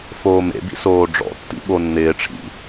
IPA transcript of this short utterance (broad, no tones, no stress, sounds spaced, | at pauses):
f oː m ḛ b ḭ s oː ɖ͡ʐ ɔ̰ tː ḭ ɓ o nː ɪː ʈ͡ʂʰ ḭ